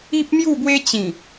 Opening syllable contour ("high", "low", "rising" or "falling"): high